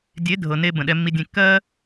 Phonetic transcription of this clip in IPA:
dʲe˨˦dʱɤ˨ ne˦ bə̃˨ɗɛ˧mːi˧dʲẽ˧ kːɜ˦

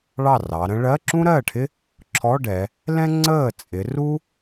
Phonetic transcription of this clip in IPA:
ɭɑ˥˩rɑ˩˧ɾə̃˥ ɭɜ˧˥˧ǁũ˥ɾɜː˥˩ʈʰɪ˥ | ǁʰɔ˧˥˧ɖɛ˩˧ | lɛ̃˥ŋ͡ǀəː˥˩ t͡sʼɪ˩˧ ru˥

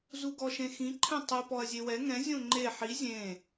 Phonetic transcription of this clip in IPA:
zuɡɔʃẽxĩ ǃʰɛ̃tˤɨ pɔɐ̯zʲewɛ ŋɛ̃ zʲõŋ͡ǃe ħi zʲẽ

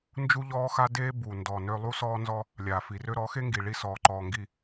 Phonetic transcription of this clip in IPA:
nd͡ʒu˦ʎɔː˦ xa˦deː˦bu˨ndɔ˨ nø˦ lˠu˦sɔː˦nzɔ˦ | lʲaː˨fi˨rø˦ ɾɔ˨˦xe˦ŋɡi˨ ɭi˦sɔː˨ǃɔː˨ŋɡi˨

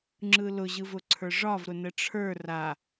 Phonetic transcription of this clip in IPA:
ŋ͡ǁɯlʊ ʑɯvʊǀʰə˞ʐɒv ɾʊnəʈ͡ʂʰə˞ ra

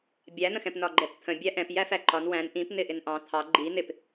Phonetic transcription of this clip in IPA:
bʲæn̪ə̃xɛ̃p nɒɡ͡ǃɛpt̪ʰə̃ bʲæʔɛ̃p jæfæǃɒn wæ̃n ʔĩpn̪ɪ ʔɪnʔɑ̃ t̪ʰɑ ɡ͡ǃi n̪ɪp

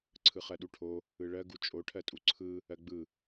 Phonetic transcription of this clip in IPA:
ǀʰɯχɜɗuʈʰo | ɯɭɜ ɡut͡ʃʼo ʈʰɜtʼuǀʰɯ | ɜɡ͡bɯ

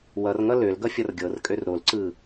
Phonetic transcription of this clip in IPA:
wʌrŋʌ lølɡʌ fʲʌrɡʲɤrkʼør ɾolǀɯ

